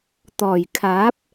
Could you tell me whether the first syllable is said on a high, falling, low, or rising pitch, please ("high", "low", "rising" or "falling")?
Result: low